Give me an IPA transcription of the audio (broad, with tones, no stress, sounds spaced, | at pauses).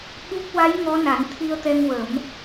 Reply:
ɓ u˦˥ k̚ w a˧˥ j ŋ ɔ˧˥ n a˨˩˦ n t̪ʰ i˧ ə̯ t̪ ɛ˧ ŋ w ə˨˩˦ m